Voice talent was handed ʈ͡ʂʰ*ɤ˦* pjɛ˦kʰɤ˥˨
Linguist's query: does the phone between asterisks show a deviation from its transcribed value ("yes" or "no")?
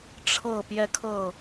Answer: yes